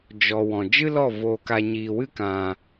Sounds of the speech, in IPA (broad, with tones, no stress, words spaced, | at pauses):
d͡ʒɔ˨ wɔ̃˨ d͡ʒɨ˦lɔ˦˨ voː˧ka˧ ɲiː˨wɨ˦kã˨